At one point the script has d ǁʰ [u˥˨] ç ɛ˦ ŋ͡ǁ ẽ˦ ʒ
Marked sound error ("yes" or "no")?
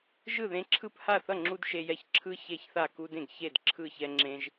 yes